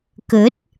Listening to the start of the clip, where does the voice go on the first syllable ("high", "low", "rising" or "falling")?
rising